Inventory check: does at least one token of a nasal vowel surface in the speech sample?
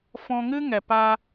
yes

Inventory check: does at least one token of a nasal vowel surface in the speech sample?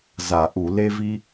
no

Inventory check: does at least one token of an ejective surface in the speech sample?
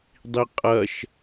yes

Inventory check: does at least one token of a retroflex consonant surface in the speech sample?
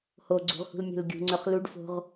yes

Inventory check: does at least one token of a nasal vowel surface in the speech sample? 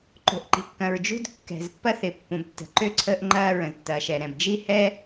yes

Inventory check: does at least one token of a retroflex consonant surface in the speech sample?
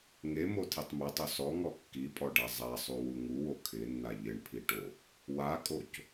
yes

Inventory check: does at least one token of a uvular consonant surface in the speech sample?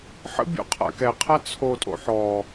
yes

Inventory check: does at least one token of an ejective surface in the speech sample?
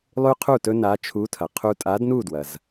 yes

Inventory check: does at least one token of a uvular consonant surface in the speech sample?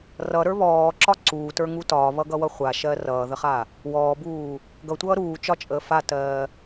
yes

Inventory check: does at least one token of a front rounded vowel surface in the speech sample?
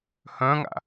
yes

